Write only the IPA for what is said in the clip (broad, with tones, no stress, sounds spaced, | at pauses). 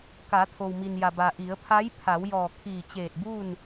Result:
k a˩˧ t̪ʰ o˩ w m i˩ n j a˩ b a˩ ʔ i˩˧ ə̯ pʰ a˧˥ j pʰ a˩˧ w j ɔː˧˩ kʰ iː˧˩ t͡ɕ eː˧˩ t̚ b uː˥˨ n